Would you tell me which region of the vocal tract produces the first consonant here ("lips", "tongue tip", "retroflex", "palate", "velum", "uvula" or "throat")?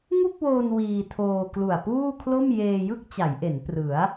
velum